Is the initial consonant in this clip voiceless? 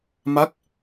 no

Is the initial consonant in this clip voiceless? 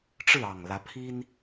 yes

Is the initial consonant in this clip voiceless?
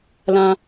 no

